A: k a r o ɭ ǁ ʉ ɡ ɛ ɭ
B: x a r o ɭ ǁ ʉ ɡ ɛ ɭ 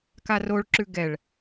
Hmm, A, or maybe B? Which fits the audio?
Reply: A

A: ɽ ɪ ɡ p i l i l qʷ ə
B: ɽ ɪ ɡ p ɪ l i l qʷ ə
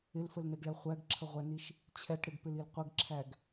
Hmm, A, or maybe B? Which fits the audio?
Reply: B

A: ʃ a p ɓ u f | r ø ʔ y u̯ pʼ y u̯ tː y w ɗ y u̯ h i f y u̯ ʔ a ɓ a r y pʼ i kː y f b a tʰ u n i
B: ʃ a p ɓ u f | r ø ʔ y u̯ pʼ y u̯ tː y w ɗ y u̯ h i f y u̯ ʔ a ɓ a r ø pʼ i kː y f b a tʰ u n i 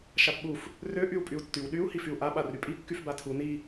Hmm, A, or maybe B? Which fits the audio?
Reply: A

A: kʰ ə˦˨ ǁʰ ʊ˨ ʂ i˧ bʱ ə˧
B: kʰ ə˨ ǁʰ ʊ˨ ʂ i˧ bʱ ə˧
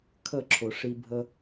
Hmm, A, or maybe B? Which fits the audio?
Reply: A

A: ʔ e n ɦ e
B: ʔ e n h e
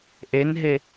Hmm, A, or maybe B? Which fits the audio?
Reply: A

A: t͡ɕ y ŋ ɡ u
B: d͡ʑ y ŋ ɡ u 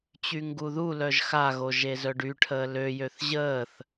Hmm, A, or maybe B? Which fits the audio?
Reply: A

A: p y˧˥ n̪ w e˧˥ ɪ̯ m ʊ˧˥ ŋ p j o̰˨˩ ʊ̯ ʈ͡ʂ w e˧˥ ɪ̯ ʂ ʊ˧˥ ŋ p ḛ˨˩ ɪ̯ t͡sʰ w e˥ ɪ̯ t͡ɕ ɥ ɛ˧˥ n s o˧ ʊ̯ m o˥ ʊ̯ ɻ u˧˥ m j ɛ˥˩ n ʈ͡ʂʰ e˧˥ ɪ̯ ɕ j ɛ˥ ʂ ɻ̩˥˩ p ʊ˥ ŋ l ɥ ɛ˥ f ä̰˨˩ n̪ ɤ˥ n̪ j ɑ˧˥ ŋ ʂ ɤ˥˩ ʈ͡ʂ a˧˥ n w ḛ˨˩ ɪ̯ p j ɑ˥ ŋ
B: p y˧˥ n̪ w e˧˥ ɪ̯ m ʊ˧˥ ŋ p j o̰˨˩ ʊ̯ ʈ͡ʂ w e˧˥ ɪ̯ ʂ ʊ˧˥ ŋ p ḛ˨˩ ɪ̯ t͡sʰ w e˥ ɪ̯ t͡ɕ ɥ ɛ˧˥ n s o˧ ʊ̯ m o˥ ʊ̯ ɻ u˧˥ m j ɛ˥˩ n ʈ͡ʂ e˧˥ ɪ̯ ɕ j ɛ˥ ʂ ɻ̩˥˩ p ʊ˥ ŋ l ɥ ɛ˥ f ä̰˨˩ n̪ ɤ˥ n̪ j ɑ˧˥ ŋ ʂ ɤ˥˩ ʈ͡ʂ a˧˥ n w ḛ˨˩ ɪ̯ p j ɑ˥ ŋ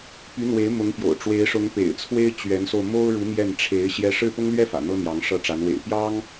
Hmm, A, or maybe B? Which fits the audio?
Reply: A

